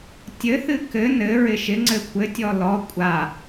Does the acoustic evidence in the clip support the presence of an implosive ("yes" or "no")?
no